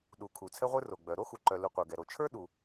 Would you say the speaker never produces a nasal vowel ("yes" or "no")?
yes